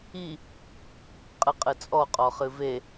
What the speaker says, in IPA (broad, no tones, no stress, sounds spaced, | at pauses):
i | qʼ ɨ qʼ ɨ t͡sʼ ɔ qʼ ɔ χ ɨ v e